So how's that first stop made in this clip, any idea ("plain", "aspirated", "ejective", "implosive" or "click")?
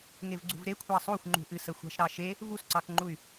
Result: click